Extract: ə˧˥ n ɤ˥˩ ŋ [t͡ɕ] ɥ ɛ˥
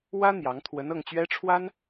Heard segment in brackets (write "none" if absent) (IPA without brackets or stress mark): t͡ɕ